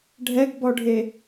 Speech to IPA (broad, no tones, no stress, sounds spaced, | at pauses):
ɖʱ ɛ ɡ b ɔ ɖʱ e